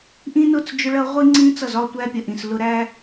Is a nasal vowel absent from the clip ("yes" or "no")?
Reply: no